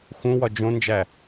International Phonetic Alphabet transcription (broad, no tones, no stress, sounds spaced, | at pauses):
x ũ w ɒ d͡ʒ õ n d͡ʒ æ